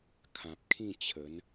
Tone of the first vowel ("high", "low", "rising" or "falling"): low